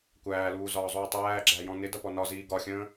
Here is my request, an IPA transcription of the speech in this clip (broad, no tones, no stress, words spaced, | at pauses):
kʷæːluːzɒːzˤuː tˤæːɡ͡ǁæjɔ̃ nɪdʌpɔ nɒziː ɡɒxʲə̃ː